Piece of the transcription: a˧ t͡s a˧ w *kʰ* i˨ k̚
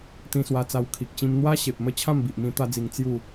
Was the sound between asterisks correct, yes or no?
yes